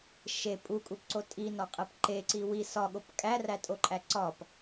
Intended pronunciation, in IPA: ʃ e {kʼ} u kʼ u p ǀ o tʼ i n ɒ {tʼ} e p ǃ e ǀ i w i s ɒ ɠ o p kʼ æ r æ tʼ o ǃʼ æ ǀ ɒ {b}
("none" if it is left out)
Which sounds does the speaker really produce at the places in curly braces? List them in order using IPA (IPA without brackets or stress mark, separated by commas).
pʼ, qʼ, p